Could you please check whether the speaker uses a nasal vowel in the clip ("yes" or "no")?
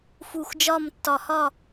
no